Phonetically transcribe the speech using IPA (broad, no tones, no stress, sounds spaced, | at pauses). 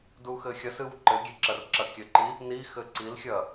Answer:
d u x ɘ xʲ ɐ s ɨ w ǃ ɘ ɡʲ e ǁ ɐ r ǁ ɐ kʲ ɘ ǃ i | n i x ɘ ǀ i l xʲ ɐ